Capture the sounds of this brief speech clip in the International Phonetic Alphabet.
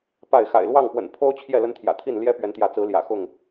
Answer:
pa˥˨ɪ̯ xa̰˨˩ɪ̯lwɑ˥˨ŋpwə̰˨˩n pʰo˦ʊ̯ t͡ɕʰjɛ˥˨lə˦nt̪ʰjä̰˨˩t̪ʰi˥˨n ljɛ˦pɥɛ˨˦nt̪jä˨˦t͡sɹ̩˨˦ ljä̰˨˩xʊ˥˨ŋ

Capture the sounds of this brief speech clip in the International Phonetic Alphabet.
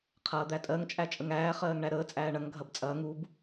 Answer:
qʰɐːd̪ætʼɜŋ t͡ʃʼæt͡ʃʼəŋæː χɜːŋɳæɾəː t͡sʼæːɳɐŋ ɡʱɐbt͡sʼɐːŋ ub

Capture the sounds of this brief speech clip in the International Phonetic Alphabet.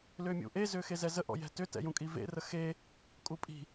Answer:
lʏːmʲṵʔe zʏːxezɛzə ʔɔ̰jɛ̤tʏ tɛ̰jũkʼivḛ rəxe | kʼupʼi̤

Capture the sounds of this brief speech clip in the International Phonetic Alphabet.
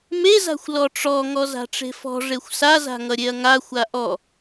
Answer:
meza̤xʷ lɔʈ͡ʂɔ ŋɔza̤ʈ͡ʂe̤fɔ̤ ʐexʷsaza̤ŋʌ ɾʲeɐ̯ŋa xʷaʔɔ

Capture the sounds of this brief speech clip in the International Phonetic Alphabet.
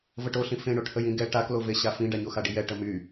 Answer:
vəʈoɬĩ fẽɳoʈhəj ĩɡɛ ʈaklove ɕafĩɖa ɲoxaɖijɛ ʈəmy

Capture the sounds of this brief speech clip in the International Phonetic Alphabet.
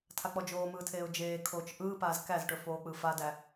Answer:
tʰak͡pɔd͡ʒoːmɯː tʰeːʊ̯d͡ʒeː kʰoːt͡ʃʔɯːpaːz kæzʈɵfoːk͡pɯ fadæ

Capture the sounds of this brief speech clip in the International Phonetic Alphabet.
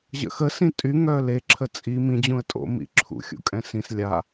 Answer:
ʑə̰xə sĩtʼy ŋœle ǁʰət͡sʼi mĩ d͡ʑũə̯tʼo̰ mḭǁʰṵ xʲṵkʼɛ̃sĩs lʲa

